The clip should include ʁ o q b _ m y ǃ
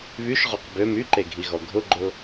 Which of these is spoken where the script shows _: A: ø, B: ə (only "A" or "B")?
A